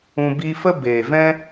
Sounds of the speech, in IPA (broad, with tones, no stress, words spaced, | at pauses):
ũ˧ biː˧fə˦ beː˨ vɛ̃˦